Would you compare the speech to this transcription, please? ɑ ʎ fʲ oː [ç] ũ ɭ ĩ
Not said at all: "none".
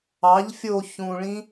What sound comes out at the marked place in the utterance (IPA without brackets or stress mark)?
ç